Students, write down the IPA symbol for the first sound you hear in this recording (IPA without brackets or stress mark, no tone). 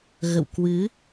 ɣ